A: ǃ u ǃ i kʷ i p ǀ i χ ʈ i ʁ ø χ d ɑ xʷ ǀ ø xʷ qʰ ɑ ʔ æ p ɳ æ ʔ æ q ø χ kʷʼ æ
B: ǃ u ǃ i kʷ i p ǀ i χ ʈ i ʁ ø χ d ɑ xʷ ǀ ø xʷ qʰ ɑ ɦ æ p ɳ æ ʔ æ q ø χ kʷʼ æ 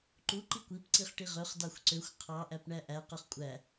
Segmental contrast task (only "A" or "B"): A